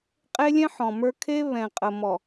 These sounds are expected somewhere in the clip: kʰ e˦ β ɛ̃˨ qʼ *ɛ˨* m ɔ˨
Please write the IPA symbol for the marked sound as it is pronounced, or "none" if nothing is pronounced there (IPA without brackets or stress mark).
ə˨